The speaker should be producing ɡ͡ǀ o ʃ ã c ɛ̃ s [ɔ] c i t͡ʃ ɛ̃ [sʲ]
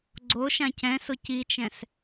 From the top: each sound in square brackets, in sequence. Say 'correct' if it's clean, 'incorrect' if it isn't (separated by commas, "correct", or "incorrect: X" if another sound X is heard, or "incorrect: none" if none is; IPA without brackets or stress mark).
incorrect: ʊ, incorrect: s